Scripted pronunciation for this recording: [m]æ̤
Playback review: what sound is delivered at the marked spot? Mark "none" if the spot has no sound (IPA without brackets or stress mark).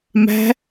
m